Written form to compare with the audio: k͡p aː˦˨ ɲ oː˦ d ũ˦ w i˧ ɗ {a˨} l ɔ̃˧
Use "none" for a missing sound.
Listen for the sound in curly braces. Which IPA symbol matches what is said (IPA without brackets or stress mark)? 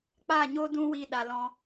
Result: a˨